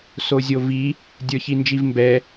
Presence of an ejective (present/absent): absent